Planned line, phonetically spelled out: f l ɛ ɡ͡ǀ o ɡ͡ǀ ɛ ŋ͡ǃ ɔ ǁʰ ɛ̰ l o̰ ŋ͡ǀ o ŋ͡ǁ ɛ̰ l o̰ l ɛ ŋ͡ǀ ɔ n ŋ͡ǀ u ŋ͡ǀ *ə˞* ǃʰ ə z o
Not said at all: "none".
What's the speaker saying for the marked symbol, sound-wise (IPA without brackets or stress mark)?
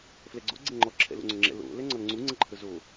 ə